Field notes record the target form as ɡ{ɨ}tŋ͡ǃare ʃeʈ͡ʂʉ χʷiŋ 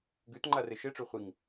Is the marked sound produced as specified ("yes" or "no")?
no